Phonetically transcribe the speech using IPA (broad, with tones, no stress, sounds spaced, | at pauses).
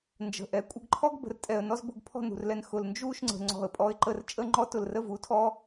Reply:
n d͡ʒ ə̤˧˩ ʔ ɛ˩˧ kʷʼ ə˧ ɡ ǃʰ ɔ˥ ɡ b ə̤˧ r tʼ ɛ˧˩ ə̯ n ɔ˥ z b ʊ˧ ɡ pʰ ɔ̤˥˧ n ṳ˧˩ r l ɛ˧ n x ʊ˧˩ l n d͡ʒ u˥˧ ʃ ŋ͡ǀ ə̤˩˧ ŋ͡ǀ ɔ̤˧˩ ə̯ pʼ ɔ˧ ɪ̯ ǃ ə˧ r t͡ʃʼ ə˥˧ ŋ͡ǃ ɔ˥ t ʊ˧˩ l r ə˥˧ v u˩˧ tʰ ɔ˥